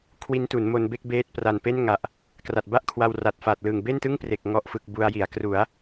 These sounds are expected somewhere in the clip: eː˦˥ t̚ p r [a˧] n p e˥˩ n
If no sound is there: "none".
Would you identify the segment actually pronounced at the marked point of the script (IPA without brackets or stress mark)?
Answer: a˨˩